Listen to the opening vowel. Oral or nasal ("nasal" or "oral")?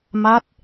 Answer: oral